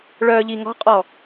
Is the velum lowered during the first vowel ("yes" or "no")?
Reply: no